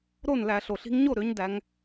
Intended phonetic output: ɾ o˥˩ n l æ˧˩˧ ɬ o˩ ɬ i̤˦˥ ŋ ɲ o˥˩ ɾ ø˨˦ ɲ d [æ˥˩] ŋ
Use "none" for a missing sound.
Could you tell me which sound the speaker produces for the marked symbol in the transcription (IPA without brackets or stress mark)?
æ˨˦